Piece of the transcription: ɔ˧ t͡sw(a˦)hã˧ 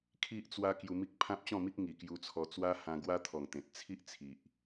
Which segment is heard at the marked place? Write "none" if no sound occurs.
a˦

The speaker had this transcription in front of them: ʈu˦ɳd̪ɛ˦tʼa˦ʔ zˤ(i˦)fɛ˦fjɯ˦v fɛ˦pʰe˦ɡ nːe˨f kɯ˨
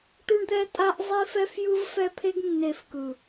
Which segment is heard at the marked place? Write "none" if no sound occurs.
i˦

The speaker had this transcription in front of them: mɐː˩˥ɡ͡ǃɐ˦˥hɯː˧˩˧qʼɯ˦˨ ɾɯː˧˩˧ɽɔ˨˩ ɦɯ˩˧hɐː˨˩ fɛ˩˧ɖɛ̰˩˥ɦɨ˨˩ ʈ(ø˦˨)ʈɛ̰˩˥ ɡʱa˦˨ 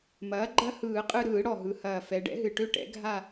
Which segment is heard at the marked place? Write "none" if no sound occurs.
ø˦˨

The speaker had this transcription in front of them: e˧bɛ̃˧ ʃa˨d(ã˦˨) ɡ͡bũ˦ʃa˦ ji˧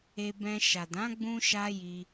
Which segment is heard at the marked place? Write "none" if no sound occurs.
ã˨˦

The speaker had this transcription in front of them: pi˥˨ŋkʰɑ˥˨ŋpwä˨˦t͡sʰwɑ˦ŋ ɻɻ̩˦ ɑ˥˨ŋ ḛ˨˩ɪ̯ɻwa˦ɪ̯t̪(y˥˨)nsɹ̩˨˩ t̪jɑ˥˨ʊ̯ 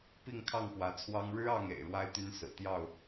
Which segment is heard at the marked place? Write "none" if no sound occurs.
y˦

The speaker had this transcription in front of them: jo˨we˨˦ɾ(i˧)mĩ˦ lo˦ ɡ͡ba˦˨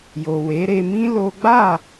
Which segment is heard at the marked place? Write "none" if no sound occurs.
e˧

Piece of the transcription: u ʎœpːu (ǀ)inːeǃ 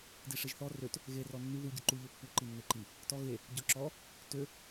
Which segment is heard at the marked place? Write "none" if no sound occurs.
ǃ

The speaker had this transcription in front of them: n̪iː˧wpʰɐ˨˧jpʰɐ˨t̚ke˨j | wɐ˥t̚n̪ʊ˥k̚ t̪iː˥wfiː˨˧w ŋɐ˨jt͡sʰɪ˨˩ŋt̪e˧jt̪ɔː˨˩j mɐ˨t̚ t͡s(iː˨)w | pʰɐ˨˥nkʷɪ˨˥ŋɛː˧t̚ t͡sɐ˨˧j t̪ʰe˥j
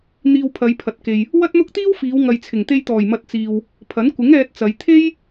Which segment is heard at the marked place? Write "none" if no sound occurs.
iː˨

